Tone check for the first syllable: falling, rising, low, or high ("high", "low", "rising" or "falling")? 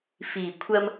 low